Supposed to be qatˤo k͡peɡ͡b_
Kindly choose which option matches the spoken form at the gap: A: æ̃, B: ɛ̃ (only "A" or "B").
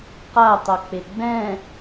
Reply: B